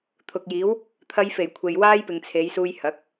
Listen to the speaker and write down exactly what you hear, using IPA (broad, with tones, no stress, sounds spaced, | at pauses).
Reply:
t̪ʰ ʊ˨ k̚ j iː˨˥ w | t̪ʰ ɐ˧ j f e˨˩ j kʷʰ e˨ j w aː˥ j p ɪ˨ ŋ t͡sʰ e˨˧ j s uː˧ j h ɐ˨˥ k̚